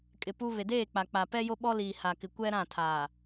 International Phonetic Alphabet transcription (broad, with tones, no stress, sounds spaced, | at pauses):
kʼ ɪ˨ p u˦ β e˨ d eː˦˨ k͡p a˨ k͡p a˨ p ɛ˦ j o˦ ɓ ɔ˦ l iː˨ h a˨ k ɪ˨ kʷ ɛ˦ ɾ ã˦˨ tʰ aː˨